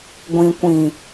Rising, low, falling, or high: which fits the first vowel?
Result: low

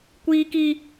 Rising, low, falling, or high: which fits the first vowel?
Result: high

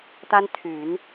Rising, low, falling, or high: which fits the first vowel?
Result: high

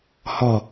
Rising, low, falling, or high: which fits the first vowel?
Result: low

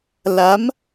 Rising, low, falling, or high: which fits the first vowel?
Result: rising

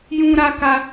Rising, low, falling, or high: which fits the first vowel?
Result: high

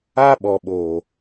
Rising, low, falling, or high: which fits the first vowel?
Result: high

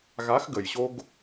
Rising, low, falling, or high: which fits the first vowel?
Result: rising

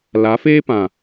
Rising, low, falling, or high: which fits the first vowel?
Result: rising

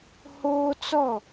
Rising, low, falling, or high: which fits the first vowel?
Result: high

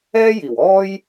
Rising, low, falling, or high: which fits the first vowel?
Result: high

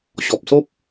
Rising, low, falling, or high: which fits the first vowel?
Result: low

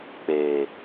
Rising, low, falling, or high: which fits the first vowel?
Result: low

